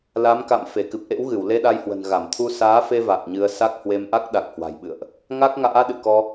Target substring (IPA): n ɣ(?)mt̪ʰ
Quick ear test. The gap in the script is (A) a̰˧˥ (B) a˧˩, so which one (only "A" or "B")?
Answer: B